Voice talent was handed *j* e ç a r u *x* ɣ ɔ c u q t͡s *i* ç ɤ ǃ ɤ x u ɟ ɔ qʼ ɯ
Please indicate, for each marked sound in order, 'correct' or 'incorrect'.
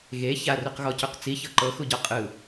incorrect, incorrect, correct

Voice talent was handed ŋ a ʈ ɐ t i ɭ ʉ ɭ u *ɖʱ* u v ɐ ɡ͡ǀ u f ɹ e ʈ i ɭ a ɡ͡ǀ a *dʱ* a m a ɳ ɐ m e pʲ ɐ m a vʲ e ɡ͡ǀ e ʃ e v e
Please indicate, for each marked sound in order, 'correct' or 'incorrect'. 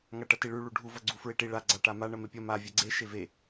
correct, incorrect

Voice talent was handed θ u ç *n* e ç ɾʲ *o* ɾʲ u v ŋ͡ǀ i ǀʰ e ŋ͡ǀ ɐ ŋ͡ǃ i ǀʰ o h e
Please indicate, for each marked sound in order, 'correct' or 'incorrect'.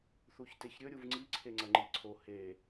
incorrect, incorrect

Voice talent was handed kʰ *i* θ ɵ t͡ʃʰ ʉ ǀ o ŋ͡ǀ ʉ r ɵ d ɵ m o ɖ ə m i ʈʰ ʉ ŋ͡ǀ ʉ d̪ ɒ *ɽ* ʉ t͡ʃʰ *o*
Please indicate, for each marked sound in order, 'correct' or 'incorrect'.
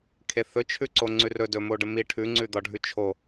incorrect, incorrect, correct

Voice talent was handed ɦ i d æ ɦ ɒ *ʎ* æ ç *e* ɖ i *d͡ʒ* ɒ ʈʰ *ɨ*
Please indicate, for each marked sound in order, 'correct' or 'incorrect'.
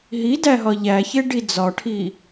correct, correct, incorrect, incorrect

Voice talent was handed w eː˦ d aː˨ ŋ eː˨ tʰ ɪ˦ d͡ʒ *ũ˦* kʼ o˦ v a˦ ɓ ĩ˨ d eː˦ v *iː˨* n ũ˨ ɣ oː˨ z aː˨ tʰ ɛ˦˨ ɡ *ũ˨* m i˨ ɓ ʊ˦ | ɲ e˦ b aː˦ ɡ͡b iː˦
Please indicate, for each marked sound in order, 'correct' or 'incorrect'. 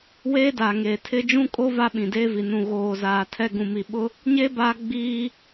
correct, incorrect, correct

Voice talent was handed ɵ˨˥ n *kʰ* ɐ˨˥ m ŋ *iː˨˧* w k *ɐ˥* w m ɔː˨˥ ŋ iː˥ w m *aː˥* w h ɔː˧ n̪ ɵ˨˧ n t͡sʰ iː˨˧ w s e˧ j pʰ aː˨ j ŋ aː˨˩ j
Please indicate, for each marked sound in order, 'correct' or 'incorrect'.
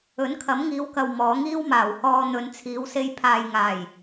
correct, correct, incorrect, incorrect

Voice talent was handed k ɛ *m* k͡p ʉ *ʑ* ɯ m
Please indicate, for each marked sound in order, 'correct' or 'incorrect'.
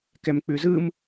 correct, incorrect

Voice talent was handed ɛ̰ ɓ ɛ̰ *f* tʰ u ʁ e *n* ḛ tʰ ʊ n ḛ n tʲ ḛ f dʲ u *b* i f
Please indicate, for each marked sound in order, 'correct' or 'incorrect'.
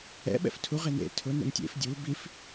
correct, correct, correct

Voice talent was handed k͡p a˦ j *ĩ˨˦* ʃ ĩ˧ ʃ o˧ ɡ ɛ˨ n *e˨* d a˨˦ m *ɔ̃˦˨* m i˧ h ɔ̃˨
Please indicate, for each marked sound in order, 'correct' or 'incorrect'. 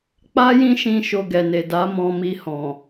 incorrect, correct, incorrect

